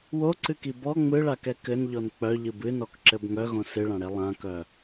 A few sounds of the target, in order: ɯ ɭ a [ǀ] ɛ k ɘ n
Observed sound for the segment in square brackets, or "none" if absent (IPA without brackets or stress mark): k